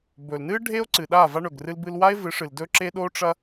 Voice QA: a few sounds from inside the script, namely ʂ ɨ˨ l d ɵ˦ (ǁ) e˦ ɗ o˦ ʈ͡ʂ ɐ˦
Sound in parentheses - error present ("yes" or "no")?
no